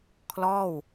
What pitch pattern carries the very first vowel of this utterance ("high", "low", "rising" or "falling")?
falling